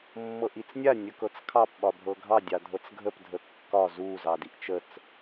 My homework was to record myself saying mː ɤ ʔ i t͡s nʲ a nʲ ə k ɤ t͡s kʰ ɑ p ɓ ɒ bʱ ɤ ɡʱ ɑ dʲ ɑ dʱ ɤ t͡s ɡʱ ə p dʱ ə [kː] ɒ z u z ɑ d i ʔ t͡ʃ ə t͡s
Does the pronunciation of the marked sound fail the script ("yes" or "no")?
no